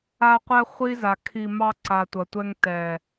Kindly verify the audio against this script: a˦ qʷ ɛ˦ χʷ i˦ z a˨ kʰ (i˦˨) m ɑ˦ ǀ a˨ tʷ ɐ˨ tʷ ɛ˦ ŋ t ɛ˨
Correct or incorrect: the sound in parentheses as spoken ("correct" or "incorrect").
incorrect